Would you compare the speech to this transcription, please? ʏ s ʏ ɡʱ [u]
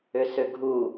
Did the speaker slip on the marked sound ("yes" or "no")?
no